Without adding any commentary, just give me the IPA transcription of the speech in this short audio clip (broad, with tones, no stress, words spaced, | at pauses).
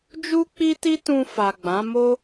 d͡ʒu˦k͡pi˦ti˦ tũ˧fa˨ɡ͡bã˨˦ mo˦